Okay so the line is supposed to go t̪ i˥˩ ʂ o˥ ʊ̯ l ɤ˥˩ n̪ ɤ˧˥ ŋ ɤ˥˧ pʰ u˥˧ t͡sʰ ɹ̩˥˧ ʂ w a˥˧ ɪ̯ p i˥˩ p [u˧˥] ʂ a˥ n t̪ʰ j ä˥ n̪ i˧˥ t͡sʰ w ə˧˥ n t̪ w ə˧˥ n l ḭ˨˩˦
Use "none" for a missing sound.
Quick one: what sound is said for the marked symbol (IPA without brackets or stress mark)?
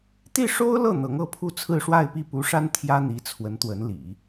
u˧˥